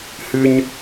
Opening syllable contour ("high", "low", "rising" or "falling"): high